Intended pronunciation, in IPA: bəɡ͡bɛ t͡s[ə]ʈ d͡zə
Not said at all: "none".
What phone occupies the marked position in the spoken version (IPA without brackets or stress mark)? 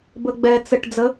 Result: ə